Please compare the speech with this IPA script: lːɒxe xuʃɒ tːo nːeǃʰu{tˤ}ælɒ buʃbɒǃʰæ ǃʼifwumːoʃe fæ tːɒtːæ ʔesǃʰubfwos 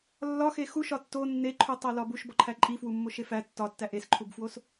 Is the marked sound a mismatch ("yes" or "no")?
no